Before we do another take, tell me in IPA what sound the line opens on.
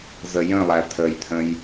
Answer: z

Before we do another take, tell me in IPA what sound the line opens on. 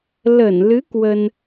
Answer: l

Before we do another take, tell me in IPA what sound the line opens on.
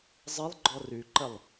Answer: zˤ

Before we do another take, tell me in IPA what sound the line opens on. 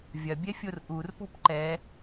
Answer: vʲ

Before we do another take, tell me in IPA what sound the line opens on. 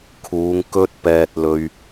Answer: kʰ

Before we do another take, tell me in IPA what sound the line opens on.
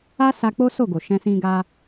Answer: a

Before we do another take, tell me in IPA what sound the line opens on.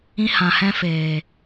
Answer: ĩ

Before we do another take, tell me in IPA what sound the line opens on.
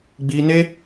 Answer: ɡ͡b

